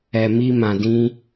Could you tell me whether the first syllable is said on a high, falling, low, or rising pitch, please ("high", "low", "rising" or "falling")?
low